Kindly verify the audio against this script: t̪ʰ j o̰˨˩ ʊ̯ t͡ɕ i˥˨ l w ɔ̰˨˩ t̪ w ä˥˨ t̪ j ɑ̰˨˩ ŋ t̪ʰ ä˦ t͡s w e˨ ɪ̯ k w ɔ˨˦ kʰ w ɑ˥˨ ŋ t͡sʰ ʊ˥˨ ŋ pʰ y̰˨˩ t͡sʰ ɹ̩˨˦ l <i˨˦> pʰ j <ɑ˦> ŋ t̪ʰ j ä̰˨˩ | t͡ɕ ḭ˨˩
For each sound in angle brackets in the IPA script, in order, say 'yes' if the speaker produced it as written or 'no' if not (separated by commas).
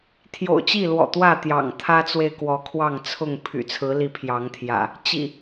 yes, no